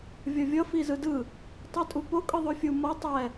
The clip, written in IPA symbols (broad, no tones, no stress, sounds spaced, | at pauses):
vʲ ʌ vʲ ʌ f i z ɯ d ɯ | tˤ i tʼ u p o kʼ ɯ ðˤ o fʲ u m ʌ tˤ ɛ